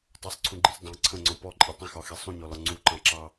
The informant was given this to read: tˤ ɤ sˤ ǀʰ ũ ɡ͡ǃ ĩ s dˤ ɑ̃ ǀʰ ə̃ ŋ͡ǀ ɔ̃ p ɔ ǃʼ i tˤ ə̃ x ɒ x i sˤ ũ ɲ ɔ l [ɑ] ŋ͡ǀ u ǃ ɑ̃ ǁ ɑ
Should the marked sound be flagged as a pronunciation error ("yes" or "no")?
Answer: yes